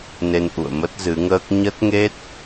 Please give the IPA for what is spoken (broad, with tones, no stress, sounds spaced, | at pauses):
n e˧ n ʔ ṵ˧˨ ə̯ m ə˦˥ t̚ z ɨ˨˦ ŋ əː˦˥ k̚ ɲ ə˦˥ t̚ ŋ e˦˥ t̚